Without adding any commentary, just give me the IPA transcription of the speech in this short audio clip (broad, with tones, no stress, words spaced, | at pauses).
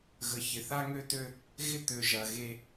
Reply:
ɣə˨ çɪ˨θa˦ŋø˦tø˦ | ɣɪ˦ t̪ø˨ ʒɐ˨ɣe˦